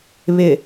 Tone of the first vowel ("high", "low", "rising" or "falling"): low